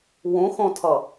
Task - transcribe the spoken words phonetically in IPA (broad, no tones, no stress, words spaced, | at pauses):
wũxõtʰʌ